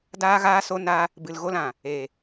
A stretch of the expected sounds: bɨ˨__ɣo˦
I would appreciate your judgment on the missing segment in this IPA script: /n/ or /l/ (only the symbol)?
l